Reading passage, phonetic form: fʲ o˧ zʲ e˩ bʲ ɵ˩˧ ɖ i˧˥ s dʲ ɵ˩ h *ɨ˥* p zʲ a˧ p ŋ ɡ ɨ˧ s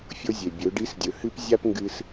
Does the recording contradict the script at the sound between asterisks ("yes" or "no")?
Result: no